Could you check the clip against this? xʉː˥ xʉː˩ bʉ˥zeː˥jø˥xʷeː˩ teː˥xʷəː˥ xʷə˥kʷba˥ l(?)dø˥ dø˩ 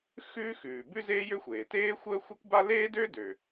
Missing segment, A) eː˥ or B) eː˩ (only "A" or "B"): A